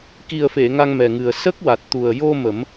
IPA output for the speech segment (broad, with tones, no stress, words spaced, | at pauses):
ki˨˩ə̯fe˨˩˨ ŋa˧ŋmɛ˨˩ŋɨ˨˩ə̯ sə˦˥k̚wa˨˩t̚ t̪u˨˩ə̯ jo˧ mə˨˩˦m